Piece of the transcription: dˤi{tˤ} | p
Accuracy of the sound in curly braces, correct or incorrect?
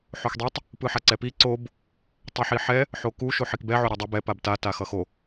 correct